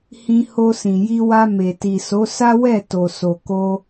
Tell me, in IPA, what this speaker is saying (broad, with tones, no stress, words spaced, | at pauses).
hĩ˧ ho˧sĩ˨ji˧wa˧ me˨ ti˨so˨˦ sa˦wɛ˦˨ to˨so˨ko˧